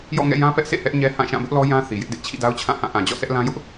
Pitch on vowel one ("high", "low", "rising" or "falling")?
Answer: falling